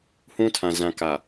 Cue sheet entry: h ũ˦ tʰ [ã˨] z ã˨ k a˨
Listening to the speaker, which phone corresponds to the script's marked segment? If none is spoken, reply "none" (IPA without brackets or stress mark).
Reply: ã˨